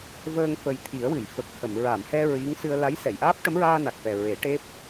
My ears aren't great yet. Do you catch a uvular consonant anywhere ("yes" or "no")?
no